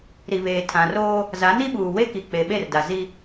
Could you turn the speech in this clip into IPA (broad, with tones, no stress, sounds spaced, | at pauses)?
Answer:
ɾ i˨ β eː˨ tʰ ã˨ r oː˦ | z a˨˦ n i˦ ɓ uː˨ w e˦ k i˨ k͡p e˨ ɓ e˦˨ r d a˨ z i˦